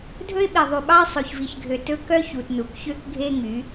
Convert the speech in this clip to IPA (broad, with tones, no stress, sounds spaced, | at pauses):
dʱ ɵ˦ ɪ̯ ɓ i˨ ðˤ y˨ ɓ ɑ˦ ɪ̯ sˤ o˨ ç v i˨ ç ɡʱ ø˨ t ɵ˦ k œ˦ ç u˨ t n u˨ k ç ø˦ k ɡʱ e˦ ŋ y˨˦